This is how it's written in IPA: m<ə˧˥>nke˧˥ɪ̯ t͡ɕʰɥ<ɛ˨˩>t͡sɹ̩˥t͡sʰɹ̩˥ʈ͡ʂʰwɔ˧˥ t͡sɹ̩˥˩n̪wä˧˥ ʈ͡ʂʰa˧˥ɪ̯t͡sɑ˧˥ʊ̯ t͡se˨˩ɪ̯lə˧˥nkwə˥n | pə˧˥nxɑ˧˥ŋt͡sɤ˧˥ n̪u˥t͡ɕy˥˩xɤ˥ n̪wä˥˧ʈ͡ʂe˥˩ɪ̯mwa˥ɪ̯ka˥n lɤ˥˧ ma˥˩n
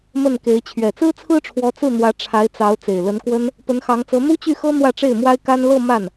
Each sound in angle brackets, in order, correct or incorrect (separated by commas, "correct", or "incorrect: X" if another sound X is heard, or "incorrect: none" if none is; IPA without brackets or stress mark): incorrect: ə˥˩, correct